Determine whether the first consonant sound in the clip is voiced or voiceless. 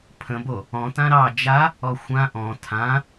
voiceless